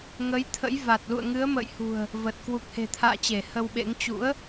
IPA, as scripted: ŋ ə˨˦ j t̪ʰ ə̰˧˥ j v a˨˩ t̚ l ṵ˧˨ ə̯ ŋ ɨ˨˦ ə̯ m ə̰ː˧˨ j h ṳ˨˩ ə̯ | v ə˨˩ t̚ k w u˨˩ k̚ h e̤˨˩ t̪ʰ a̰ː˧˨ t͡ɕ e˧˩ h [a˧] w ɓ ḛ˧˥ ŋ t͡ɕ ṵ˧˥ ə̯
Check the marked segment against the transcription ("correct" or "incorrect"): incorrect